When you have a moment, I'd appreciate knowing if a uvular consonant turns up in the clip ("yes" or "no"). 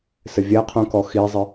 yes